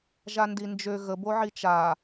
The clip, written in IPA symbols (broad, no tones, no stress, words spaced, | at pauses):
ʒandind͡ʒø ɣə boʕit͡ʃa